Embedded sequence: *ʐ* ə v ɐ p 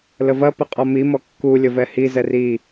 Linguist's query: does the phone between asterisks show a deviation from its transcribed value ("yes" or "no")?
yes